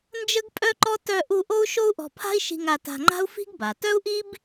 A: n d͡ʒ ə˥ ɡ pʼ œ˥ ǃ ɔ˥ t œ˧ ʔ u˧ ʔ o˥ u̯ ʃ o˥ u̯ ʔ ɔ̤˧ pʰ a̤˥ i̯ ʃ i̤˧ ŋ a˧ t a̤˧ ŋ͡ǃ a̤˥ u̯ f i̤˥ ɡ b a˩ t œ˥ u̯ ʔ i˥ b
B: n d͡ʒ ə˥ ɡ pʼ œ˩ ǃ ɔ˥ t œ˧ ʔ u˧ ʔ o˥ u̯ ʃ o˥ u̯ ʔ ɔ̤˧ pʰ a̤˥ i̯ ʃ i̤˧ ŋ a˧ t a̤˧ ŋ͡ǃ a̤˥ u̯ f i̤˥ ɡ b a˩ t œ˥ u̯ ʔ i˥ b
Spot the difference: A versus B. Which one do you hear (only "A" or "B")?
A